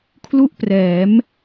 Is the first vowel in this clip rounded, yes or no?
yes